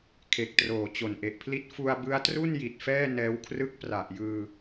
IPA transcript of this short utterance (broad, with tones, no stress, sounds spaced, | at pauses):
kʰ e˨˩ k̚ t r oː˨˩ t͡ɕ o˨˩ n ʔ e˨˩ ʔ pʰ l i˥˩ t̚ f u˧ a̯ b ɯ˦˥ a̯ t r u˥˩ n j i˨˩ t̚ f ɛː˥˩ n ɛː˦˥ w kʰ r ɯ˥˩ k̚ p r a˨˩ ʔ j ɯː˧